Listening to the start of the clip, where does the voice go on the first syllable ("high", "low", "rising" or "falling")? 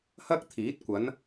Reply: high